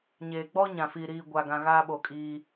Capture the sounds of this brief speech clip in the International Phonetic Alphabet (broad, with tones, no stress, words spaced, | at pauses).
ɲeː˨ ɡ͡bɔ˦ ɲã˨fiː˨ ɾiː˨ ɡʷaː˨ɡã˨ ɣaː˦ɓo˨kʼiː˦